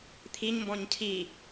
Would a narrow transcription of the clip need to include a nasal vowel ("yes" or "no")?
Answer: yes